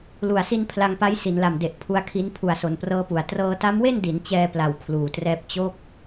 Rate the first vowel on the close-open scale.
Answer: close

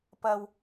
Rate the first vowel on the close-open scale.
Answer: open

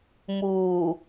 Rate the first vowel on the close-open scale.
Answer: close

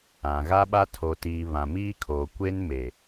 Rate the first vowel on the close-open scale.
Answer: open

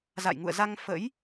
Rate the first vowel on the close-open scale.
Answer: open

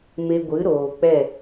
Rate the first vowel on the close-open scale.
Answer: mid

